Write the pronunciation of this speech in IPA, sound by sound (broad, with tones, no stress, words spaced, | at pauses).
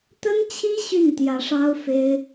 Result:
t̪ə˥nt͡ɕʰi˥ ɕy˥˩nt̪jä˧˥ʂɑ˥ʊ̯ fe˥ɪ̯